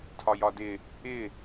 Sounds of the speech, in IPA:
tʰ ɒ j ɒ d ɪ | ɪ

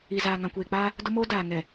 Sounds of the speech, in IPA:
i˨ z aː˨ ŋ ã˨ kʷ eː˨ k͡p aː˦ | d ʊ˦ m oː˦ d aː˨ ŋ ɛ˨

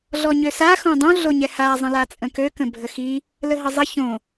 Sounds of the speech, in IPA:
ɮ ɔ ɲ ø s a x õ dˤ õ ɮ o ɲ ɛ h a zˤ ə̃ l a t͡sʼ ə̃ k ø k ə̃ bʱ ə x i | l ə ɦ ə zˤ ə ç õ

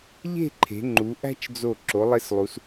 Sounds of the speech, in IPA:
ʎ e̤˥˧ ǃʰ e̤˩˧ ŋ͡ǃ u˩˧ ʔ æ̤˥ t͡ʃ d͡z o˧˩ ǁ o˩˧ lˠ e˧ s lˠ u˩˧ s

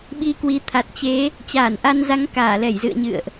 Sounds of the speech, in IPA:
ɓ i˧ k w i˨˦ t̪ʰ a˨˩ t̚ t͡ɕ e˨˦ | t͡ɕ aː˧˩ n ʔ a˧ n z a˨˦ ŋ k aː˧˩ l ɛ˧˩ j z ɨ̰˧˨ ə̯ ɲ ɨ̰˧˨ ə̯ ʔ

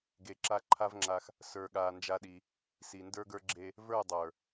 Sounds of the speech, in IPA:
ɡ e˨ ǁ a˧ ǃʰ a˦ v ŋ͡ǁ a˧ x | s ə˞˨ ɠ a˨ n d͡ʒ a˧ ɗ i˧ | s i˨ n d ə˞˦ ɡ ə˞˦ ɡ͡ǁ e˦ | v ə˞˦˨ dˤ ə˞˨

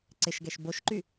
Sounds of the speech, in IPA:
ǀ ɪ ʃ ɡ ɛ ʃ b o ʃ ǃ y

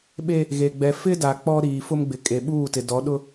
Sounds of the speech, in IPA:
ɓ e˦ | ɣ e˨ ɡ͡b ɛ˨ f ɪ˦ d a˨ k͡p ɔ˦ ɾ iː˨ f ʊ˦ m ɡ͡b ɪ˨ kʼ e˨ ɓ uː˦˨ t ɪ˨ d ɔ˨˦ ɗ ʊ˦

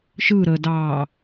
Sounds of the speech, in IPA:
ʃ ɯ ɾ əː d ɑː

